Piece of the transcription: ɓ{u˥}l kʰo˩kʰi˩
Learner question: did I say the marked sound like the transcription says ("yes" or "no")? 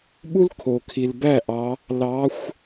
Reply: yes